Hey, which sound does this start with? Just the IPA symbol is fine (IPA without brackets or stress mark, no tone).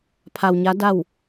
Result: pʰ